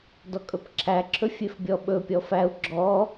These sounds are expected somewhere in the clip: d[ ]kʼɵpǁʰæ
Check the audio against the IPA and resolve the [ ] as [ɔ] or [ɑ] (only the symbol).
ɔ